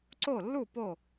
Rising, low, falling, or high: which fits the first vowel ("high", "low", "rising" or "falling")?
falling